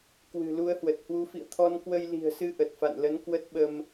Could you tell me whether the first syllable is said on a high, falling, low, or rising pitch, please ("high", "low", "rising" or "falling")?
low